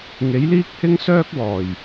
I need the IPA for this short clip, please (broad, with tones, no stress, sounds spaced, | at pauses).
ŋ e˨˥ j l iː˥ k̚ h ɪ˥ ŋ s œː˥ k̚ w ɔː˨˩ j